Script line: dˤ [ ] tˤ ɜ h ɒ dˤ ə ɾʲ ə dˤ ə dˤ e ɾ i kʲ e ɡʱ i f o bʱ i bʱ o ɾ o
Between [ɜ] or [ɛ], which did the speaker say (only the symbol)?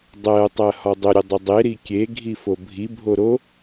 ɜ